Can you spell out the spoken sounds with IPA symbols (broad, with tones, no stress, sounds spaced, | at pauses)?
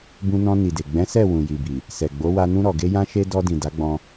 b ũ˧ n ɔ̃˧ n i˨ d e˨ ɡ͡b ɛ̃˨˦ s ɛ˦˨ w ũ˨ j i˨ b i˨ | s ɛ˨ ɡ͡b o˨˦ w a˧ n ũ˧ ɾ ɔ˨ ɡ e˧ j ã˧ ʃ e˧ d ɔ˧ d ĩ˨ d a˨˦ ɡ͡b ɔ̃˧